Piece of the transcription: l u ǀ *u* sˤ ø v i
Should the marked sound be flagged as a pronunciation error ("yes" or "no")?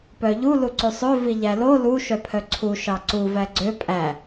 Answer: yes